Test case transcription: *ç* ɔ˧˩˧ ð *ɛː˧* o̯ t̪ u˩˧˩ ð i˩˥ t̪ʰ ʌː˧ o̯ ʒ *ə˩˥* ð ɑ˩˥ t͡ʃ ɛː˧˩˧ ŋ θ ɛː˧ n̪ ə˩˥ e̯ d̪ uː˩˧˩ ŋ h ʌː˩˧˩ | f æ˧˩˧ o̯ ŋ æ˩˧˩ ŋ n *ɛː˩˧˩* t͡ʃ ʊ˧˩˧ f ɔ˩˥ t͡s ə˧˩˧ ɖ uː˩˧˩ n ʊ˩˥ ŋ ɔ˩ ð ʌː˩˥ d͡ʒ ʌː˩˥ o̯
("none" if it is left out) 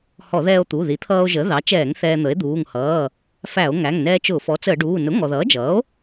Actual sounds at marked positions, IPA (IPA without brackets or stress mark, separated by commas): h, ɛː˧, ə˩˥, ɛː˧